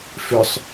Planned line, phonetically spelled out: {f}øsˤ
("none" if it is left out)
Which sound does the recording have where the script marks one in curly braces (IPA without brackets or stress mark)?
f